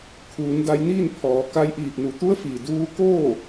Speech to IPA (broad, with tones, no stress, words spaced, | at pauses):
kʰuː˩˧nda˧jniː˥˨npʰɔː˩˧ ka˧jʔiː˧˩p̚ nu˩˧t̪u˧˥ə̯ fi˩duː˧ koː˥˨